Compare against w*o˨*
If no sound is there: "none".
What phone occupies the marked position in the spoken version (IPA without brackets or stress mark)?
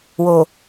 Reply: o˨